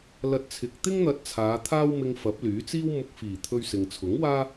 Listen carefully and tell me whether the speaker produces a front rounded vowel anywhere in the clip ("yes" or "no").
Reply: yes